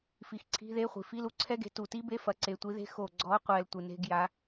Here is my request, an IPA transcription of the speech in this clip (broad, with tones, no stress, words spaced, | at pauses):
fi˨˩xǀʰi̤˧˥˧ðe˧˥˧χʷi̤˨˩ fi˧˥˧lu˨˥ǀʰɛ˦˥ɡe̤˨˥ tu˨˩ti˦˥be˧˥˧ fɐ˨˥ǀe˨˩tʷi˨˥ðe̤˦˥ xo˨˩ɡ͡ǀɔ˨˥qʷɛ˨˩l tʷɨ˨˩ne̤˧˥˧ɡ ja˨˥